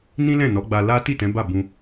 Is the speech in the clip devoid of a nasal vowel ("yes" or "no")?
no